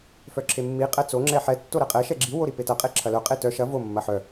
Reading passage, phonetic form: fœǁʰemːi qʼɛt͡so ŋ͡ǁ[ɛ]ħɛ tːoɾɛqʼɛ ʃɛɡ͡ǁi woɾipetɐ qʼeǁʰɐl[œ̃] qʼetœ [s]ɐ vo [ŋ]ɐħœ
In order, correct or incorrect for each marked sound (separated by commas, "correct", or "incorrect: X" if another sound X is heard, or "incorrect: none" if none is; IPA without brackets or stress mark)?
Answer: correct, incorrect: œ, incorrect: ʃ, incorrect: mː